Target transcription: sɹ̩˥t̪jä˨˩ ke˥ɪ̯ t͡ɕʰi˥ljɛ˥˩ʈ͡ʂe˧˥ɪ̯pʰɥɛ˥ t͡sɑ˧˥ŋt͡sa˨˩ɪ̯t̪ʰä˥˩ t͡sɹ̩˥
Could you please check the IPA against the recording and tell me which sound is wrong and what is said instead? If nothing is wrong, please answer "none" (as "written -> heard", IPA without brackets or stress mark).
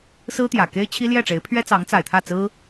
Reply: none